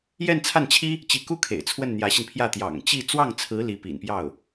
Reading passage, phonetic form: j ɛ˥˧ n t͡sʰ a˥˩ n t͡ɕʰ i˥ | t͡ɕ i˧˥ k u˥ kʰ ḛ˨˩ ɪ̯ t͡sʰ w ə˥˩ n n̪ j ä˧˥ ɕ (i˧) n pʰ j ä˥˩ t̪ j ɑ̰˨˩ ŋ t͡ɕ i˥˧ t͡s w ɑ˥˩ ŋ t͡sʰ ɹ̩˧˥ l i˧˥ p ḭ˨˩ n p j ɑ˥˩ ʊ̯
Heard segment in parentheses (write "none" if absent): i˧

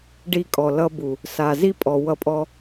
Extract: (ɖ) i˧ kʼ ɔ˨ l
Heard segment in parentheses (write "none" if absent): ɖ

